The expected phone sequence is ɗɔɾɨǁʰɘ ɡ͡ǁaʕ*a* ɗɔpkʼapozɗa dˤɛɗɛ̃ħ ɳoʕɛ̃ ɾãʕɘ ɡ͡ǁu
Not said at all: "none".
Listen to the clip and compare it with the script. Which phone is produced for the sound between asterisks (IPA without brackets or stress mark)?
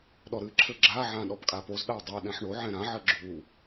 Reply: ã